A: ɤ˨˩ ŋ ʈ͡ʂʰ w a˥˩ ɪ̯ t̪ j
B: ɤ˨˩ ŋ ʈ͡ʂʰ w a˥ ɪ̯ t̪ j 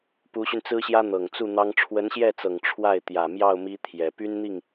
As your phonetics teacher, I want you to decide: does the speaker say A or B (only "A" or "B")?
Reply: A